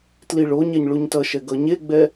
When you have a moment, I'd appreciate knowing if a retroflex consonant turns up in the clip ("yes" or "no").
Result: yes